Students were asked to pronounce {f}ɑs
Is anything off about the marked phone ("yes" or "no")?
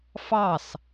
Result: no